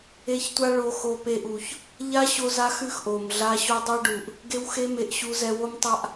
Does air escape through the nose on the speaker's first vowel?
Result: no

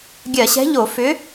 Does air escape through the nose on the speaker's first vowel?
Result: no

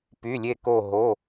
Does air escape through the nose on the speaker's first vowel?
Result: no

